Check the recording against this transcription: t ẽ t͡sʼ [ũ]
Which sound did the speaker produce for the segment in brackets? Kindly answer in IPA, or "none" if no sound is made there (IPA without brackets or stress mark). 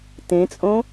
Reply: õ